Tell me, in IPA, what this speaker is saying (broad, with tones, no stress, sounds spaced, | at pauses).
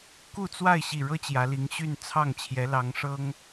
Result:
k u˥˧ t͡s w a˥˧ ɪ̯ ɕ i˥˩ ɻ ɤ˥ t͡ɕ j ä˧˥ l i˧˥ ŋ ɕ y˥˧ n t͡sʰ ɑ˥˩ ŋ t͡ɕʰ j ɛ˧˥ l ɑ˧˥ ŋ ʂ ɤ˥ ŋ